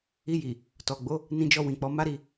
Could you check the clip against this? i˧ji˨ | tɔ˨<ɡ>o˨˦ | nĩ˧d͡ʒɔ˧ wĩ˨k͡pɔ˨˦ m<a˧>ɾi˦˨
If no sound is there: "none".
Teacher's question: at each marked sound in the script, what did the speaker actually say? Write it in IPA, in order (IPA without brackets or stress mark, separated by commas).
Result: ɡ͡b, a˦